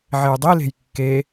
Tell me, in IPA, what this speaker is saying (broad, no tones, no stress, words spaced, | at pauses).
ʕejdˤile̤j kːe